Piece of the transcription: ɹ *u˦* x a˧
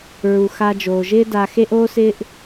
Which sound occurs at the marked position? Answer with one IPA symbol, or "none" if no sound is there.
u˨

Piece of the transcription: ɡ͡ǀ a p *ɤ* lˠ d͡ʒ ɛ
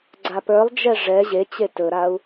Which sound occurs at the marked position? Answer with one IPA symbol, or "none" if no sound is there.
ə˞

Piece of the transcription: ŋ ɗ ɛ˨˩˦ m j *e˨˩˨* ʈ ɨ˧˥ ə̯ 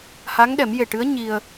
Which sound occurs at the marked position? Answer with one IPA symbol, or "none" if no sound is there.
e˨˩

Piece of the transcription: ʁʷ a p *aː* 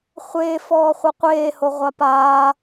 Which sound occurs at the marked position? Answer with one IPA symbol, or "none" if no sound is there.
aː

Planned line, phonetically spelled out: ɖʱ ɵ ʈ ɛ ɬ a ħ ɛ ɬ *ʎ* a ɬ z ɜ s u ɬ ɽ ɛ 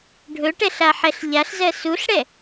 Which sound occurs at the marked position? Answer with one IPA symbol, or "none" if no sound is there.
ʎ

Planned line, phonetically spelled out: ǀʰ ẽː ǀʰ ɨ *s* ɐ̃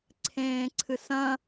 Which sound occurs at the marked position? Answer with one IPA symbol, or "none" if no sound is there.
s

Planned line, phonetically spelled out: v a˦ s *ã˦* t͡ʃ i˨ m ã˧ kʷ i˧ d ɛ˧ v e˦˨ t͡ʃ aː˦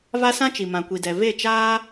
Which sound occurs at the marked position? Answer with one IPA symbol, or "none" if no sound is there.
ã˦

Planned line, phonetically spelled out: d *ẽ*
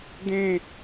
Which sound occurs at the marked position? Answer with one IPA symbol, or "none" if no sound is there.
ẽ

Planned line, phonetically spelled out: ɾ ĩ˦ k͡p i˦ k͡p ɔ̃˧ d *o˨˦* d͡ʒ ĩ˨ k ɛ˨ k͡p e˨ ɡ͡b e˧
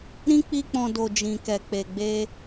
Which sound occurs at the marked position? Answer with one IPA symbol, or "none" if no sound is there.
o˨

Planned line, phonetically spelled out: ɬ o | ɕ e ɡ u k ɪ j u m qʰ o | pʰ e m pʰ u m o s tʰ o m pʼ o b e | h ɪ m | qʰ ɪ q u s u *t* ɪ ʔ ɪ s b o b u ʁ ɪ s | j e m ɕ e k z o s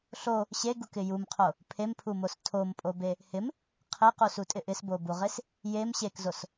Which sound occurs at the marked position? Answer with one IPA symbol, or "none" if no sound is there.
tʼ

